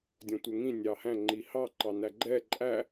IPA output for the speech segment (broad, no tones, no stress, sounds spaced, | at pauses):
dʲ ɔ̃ tʷ ɛ ŋ ĩ nʲ ɑ h æ̃ ŋ͡ǃ i h ɑ ǃ ɑ n æ ɡ͡ǃ ɛ ǃʼ æ